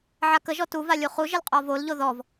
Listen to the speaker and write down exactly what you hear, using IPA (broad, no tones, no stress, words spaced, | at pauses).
ʕakəʒɔ tuva lʲuχuʒəl qʼɔvolʎo ðɔv